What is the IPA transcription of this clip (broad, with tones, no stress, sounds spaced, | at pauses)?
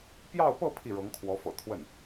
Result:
p j ɑ˥˧ ʊ̯ p ɤ˥˧ pʰ i˥˩ ɻ ɤ˧˥ ŋ kʰ w ɔ˧˥ f ɤ̰˨˩ t̪ʰ w ə˥˩ n